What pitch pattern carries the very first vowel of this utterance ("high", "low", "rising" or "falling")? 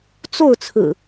falling